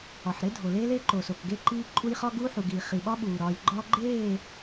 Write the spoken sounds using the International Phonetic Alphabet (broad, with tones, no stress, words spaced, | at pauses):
ɒ˨ħɾe˦dʱo˨ leː˦leː˦ǃo˨so˨k ɡe˦ǃiː˦ǃʼu˦j χɒ˦ɡuː˦ħu˨ɡiː˨ χi˨ɓɒ˦ɓuː˨ɾɒː˨j ɡ͡ǃɒː˦ɡ͡ǃeː˦˨